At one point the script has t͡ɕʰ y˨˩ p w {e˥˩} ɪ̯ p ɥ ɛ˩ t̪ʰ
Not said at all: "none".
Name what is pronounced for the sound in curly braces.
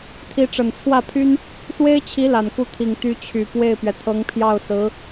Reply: e˥˩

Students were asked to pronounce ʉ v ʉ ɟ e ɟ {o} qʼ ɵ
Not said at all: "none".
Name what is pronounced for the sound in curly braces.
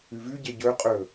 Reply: ɵ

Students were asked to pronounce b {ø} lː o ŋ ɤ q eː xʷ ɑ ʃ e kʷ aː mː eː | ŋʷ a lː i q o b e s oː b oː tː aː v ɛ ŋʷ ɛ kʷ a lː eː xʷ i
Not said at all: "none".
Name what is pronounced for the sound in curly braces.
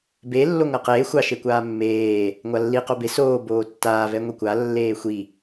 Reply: e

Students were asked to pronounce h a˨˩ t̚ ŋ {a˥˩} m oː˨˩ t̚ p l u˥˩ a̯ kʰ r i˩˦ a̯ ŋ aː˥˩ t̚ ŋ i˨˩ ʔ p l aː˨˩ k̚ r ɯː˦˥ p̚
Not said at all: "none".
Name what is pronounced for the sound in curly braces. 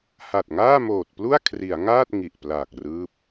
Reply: aː˥˩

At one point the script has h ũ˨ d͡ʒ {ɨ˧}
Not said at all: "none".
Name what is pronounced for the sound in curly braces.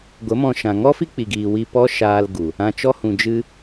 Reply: ɨ˧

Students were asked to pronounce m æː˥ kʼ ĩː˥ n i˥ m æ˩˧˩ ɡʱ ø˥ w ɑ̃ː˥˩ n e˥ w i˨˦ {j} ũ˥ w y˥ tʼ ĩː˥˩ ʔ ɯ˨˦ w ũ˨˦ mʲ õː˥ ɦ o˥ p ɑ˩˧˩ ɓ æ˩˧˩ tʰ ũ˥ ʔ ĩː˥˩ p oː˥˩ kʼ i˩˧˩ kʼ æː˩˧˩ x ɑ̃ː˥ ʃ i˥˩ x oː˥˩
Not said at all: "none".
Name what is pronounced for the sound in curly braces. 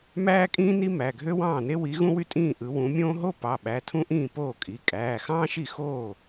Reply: ɣ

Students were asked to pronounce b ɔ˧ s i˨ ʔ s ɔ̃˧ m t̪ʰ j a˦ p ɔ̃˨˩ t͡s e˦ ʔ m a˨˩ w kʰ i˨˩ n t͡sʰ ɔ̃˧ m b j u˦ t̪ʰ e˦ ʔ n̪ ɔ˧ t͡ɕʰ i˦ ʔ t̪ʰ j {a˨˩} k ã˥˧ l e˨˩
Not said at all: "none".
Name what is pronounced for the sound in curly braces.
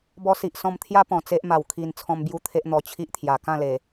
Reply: a˨˩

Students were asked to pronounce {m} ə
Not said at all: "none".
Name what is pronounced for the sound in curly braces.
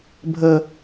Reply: bʱ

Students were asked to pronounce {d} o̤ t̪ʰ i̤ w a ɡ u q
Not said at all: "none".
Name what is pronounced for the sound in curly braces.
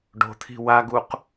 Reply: ɖ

